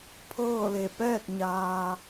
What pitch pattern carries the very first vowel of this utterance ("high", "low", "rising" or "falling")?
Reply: falling